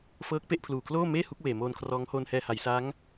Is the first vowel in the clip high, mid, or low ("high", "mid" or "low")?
mid